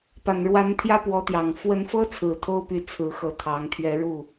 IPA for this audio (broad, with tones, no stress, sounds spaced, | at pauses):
p a˨˩ n ɻ w a˧˥ n t̪ʰ j ä˥ p w ɔ˧˥ t̪ j ɑ˨˩ ŋ f w ə˧˥ n f ɤ˥ t͡sʰ ɹ̩˨˩ t̪ʰ o˥ ʊ̯ p y˧˥ t͡sʰ ɹ̩˧˥ x ɤ˧˥ t̪ʰ ɑ˧˥ ŋ t̪ʰ ɥ ɛ˧˥ ɻ u˥˩